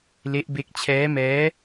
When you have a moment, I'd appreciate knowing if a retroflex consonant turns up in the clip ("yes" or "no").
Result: no